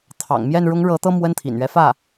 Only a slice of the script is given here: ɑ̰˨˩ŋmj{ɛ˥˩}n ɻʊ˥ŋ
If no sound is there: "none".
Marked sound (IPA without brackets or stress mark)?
ɛ˥˩